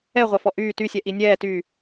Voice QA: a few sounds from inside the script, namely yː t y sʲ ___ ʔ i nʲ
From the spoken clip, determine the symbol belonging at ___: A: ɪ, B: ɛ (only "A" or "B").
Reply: B